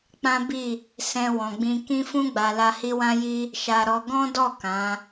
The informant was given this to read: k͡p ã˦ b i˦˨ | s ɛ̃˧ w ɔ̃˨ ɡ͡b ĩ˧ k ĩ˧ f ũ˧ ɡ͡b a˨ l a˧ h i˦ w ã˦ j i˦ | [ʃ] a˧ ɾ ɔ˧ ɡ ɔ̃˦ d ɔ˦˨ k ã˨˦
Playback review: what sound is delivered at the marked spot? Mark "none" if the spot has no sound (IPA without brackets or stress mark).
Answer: ʃ